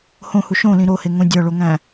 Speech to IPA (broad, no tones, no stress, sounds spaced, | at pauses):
h õ h u ʃ õ l ĩ ɾ o h e ŋ õ dʲ ɒ ɭ o ŋ æ̃